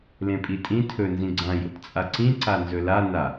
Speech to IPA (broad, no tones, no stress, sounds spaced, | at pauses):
l ẽ pʼ i tʼ ĩ tʰ ɵ n z ĩ ɡ͡ǀ ã j o̰ t t͡sʼ a ǀ ĩ ǀ a n z ɵ l a n a